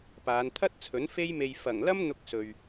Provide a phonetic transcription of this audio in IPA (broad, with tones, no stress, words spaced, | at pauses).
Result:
paː˨˧nt̪ʰɐ˥t̚t͡sʰɵ˨˥n fe˥jme˧j fɐ˨˩ŋlɐ˥m n̪ʊ˧k̚sɵ˨ɥ